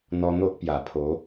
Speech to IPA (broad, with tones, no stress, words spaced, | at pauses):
n̪ɔ˧n̪o˦ʔ pja˨˩pʰo˨˦